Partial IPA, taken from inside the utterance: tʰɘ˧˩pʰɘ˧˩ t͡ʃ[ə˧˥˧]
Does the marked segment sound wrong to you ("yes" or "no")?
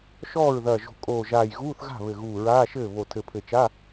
yes